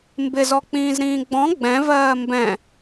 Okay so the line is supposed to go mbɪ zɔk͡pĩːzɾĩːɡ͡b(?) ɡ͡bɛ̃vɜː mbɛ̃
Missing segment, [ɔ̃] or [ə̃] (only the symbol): ɔ̃